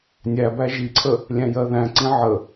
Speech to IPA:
nʲæbæ ʒiǀʰə | lʲæ̃jɜðæ̃ǀĩ ʕə

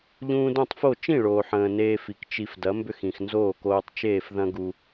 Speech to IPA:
ʎũː˧dõ˥˩tˤfo˥˩ t͡ʃĩ˥˩ɭoː˩ħə̃ː˩ neː˧fi˩k t͡ʃi˧f dɐ˩˥mbʏ˥˩xĩ˩x nzoː˥˩koː˧tˤ t͡ʃeː˥˩f ðɐ̃˥ɡu˧

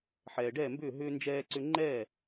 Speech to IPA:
ħɛː˩ɖɛː˥˩mbʏː˥˩ ɦʏː˧ nd͡ʒɛː˧ǀʏ˧ŋ͡ǃɛː˥˩

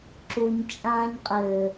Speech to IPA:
ǁuɲt͡ʃʼãːɲqʼɘː

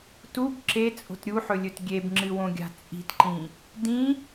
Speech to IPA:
tub ǁet͡sʼo̤t ɾʲuħɵlʲɵt ɡʲebŋ͡ǁɨwõɡʲa̤ t͡sʼi̤tǃĩ | dĩ

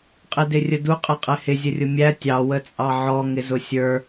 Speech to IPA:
qʼɪdɪrʲədu qʼɛqʼɛhɪ zʲərʲʊmʲæ tʲɑ wət͡sʼɑʕɔ ŋɪzʊsʲə˞

